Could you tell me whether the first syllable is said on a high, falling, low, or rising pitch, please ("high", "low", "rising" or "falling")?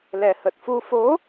low